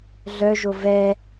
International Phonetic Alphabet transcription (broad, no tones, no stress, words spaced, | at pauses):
ɮœʒo vɛ